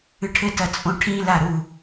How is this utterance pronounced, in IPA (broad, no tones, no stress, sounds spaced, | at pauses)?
ɨ ʈʰ ɘ t ɐ t͡sʼ õ ʈʰ ĩ l a ɾ u